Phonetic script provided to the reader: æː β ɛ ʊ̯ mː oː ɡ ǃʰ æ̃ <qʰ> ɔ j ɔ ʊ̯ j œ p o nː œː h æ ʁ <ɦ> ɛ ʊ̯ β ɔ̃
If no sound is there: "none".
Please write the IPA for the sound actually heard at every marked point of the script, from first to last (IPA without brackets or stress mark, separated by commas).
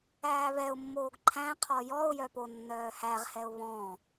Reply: qʰ, h